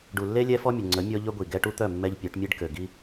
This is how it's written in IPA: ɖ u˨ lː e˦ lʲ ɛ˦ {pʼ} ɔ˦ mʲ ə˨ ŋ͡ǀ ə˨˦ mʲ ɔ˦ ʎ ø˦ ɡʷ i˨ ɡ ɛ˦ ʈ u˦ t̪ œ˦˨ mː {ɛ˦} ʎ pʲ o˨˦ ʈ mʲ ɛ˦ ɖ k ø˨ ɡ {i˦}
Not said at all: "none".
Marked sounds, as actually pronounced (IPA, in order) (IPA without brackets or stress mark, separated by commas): f, ɛ˦, i˦